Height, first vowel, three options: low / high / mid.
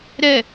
mid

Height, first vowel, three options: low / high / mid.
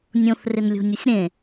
mid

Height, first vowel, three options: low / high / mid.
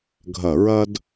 low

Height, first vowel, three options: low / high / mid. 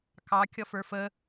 low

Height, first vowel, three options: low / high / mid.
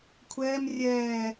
mid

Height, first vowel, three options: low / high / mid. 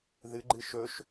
high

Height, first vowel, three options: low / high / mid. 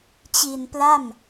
high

